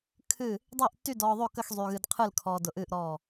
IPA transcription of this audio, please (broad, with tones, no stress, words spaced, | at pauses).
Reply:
kʰɨ˥˨ | dˤɜ˥˨ʔtːy˥˨ dɔː˧ðˤo˥˨kə˥˨x zˤy˧ɣɨ˧dqʰɨ˥˨lkʰɔː˧ dʊ˧ʔɨː˥˨ʔɾɔː˥˨